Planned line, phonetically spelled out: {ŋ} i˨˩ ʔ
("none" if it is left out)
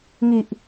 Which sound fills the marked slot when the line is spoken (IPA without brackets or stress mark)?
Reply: ŋ